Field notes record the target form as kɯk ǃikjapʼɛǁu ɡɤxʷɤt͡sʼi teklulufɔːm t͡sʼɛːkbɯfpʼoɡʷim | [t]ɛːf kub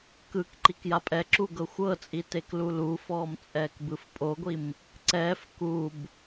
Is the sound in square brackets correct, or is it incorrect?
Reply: incorrect: ǀ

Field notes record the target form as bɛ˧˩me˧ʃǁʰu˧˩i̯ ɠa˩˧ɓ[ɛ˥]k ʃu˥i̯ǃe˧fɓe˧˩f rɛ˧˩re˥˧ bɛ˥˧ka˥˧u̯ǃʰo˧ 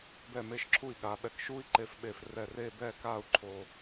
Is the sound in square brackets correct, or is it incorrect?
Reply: incorrect: ɛ˧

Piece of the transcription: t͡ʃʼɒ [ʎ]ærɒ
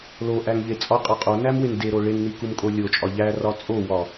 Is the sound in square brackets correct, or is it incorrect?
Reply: correct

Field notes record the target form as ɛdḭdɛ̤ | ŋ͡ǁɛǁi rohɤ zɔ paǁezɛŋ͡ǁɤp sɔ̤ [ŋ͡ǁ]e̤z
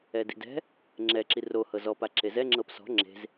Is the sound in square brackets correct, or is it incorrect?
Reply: correct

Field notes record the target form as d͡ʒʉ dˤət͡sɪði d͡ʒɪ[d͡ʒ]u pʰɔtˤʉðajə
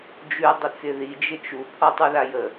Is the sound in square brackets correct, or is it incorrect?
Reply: incorrect: t͡ʃ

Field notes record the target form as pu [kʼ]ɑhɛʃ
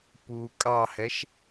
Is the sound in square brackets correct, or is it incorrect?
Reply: correct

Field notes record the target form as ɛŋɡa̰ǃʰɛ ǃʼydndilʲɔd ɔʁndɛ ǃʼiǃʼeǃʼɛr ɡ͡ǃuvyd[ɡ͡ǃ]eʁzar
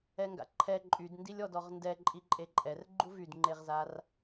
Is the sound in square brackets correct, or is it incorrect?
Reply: incorrect: ŋ͡ǃ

